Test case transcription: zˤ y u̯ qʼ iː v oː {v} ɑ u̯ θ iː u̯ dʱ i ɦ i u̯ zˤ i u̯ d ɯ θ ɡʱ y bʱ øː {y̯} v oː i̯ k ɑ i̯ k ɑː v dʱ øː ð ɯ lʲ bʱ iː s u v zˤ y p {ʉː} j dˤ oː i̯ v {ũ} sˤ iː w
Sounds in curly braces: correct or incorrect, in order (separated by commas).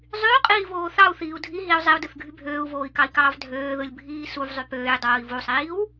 incorrect, incorrect, incorrect, incorrect